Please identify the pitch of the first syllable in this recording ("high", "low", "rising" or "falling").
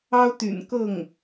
high